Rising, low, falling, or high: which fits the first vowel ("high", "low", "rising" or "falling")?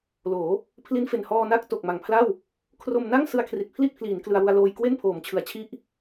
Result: rising